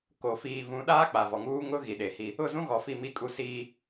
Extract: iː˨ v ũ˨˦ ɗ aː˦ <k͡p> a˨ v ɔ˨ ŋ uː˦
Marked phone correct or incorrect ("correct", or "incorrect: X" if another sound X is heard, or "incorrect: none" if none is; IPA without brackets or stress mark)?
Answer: correct